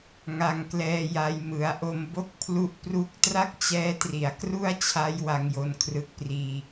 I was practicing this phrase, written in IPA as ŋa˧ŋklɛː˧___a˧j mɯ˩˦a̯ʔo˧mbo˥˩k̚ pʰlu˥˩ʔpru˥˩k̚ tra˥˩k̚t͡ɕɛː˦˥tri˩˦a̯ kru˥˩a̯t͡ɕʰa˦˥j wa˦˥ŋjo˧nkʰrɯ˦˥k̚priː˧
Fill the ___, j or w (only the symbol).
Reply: j